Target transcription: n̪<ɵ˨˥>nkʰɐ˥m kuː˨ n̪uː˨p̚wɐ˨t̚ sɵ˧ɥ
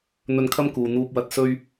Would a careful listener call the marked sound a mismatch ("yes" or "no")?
yes